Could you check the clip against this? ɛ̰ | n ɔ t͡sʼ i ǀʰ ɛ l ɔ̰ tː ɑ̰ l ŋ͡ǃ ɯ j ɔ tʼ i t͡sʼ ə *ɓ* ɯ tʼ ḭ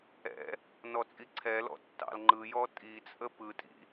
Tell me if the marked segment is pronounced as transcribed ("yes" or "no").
no